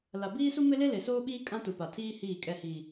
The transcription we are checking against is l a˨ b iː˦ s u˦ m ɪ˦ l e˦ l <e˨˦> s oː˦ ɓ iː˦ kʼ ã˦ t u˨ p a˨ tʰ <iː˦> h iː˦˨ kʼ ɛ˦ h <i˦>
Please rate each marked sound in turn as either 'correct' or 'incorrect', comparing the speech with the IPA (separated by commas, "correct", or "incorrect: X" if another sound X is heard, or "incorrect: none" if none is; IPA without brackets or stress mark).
incorrect: e˨, correct, incorrect: iː˦